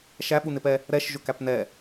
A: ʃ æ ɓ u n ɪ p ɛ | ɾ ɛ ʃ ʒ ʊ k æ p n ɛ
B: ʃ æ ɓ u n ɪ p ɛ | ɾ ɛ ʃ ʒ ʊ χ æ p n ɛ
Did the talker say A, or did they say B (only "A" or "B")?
A